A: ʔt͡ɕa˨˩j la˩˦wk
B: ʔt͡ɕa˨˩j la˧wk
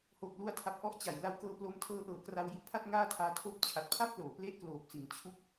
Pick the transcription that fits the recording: B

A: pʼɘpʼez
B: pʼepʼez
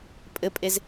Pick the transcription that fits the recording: A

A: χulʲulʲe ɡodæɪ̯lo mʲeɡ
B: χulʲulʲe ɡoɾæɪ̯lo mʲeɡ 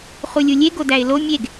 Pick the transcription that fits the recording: A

